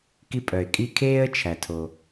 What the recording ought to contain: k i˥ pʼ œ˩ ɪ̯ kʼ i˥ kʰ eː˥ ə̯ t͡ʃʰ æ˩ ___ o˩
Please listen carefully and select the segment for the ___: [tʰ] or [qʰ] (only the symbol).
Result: tʰ